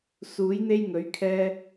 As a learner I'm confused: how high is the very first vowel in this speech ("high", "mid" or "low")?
high